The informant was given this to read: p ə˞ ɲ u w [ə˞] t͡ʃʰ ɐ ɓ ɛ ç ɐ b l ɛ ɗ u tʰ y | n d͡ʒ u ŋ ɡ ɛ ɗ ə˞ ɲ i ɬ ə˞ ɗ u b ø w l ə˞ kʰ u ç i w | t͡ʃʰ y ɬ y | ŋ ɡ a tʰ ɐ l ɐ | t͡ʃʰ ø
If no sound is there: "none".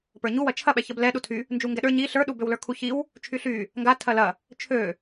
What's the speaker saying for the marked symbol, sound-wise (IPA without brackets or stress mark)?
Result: ɐ